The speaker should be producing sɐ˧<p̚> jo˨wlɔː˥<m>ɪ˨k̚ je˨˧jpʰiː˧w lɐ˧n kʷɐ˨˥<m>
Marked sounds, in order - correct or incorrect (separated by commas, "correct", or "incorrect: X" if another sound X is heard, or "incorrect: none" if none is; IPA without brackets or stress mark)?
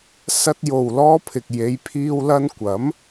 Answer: incorrect: t̚, incorrect: pʰ, correct